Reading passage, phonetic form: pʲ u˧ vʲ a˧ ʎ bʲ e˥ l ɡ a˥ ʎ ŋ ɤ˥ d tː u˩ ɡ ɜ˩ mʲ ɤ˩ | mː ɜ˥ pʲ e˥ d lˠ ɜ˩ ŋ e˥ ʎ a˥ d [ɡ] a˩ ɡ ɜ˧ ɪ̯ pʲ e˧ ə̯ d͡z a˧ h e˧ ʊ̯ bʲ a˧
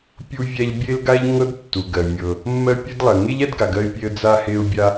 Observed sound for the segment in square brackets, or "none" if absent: ɡ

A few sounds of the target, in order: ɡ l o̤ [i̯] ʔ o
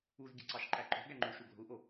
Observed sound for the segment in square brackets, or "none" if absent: u̯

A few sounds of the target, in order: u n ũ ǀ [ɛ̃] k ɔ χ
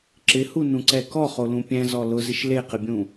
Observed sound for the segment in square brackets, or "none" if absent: ɛ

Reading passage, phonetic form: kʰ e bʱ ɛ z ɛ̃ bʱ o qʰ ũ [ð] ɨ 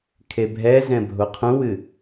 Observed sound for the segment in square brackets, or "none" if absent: w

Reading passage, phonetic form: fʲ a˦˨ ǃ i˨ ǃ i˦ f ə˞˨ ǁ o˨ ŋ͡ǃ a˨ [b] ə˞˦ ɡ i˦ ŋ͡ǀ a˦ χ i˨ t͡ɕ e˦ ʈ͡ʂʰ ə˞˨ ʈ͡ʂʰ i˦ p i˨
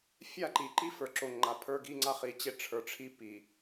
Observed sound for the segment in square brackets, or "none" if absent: pʰ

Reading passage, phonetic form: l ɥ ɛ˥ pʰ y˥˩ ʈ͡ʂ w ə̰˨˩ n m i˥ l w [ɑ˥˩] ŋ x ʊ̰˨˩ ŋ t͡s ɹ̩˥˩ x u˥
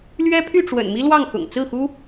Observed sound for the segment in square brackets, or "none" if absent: ɑ˥˩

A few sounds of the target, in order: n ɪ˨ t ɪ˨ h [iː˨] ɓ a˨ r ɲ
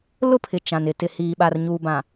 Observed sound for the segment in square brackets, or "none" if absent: iː˨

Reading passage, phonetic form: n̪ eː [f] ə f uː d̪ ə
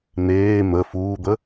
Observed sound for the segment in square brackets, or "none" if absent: m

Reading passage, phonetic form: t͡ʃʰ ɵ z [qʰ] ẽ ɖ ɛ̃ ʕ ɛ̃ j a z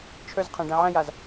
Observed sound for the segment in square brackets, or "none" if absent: qʰ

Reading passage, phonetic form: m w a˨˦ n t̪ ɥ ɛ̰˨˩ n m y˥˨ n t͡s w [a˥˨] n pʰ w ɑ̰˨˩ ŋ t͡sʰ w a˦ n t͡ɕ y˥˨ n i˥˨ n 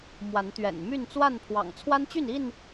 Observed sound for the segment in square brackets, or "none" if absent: a˥˨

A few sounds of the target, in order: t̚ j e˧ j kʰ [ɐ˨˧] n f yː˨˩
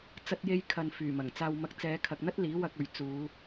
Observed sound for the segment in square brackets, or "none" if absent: ɐ˨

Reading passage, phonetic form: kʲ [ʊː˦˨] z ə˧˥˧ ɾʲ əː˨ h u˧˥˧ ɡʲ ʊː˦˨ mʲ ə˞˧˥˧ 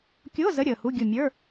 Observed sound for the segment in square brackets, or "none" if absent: ʊː˧˥˧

